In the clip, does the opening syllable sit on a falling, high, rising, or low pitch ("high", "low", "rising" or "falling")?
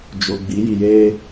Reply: low